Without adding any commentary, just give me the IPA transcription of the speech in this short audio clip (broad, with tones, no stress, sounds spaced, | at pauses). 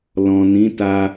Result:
l ɔ̃˨ n ĩ˨˦ t a˧